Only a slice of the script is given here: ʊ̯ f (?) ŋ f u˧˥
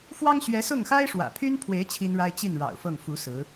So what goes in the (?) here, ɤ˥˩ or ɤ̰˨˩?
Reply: ɤ˥˩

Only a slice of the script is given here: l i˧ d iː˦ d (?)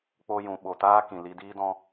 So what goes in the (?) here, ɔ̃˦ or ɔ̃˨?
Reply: ɔ̃˦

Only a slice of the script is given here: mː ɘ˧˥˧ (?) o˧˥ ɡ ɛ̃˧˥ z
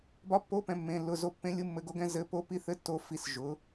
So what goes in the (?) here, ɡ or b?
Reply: ɡ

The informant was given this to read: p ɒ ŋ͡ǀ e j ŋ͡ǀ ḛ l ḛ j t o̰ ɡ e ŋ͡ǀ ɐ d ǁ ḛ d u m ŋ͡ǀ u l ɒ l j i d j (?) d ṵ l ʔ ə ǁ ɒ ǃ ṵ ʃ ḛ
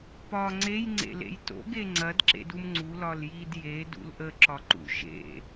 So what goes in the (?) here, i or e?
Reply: e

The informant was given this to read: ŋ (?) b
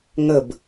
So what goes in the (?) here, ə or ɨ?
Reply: ə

